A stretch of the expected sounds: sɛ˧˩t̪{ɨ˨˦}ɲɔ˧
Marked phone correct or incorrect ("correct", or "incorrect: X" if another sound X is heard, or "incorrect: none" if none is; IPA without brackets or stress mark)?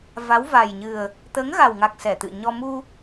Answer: incorrect: ɨ̰˧˨